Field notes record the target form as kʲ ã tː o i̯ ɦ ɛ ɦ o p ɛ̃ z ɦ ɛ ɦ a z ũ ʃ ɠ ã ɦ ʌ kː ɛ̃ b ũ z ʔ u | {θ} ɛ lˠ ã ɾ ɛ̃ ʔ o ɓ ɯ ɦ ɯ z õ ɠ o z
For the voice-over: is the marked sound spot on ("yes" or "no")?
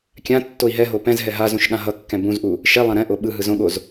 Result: no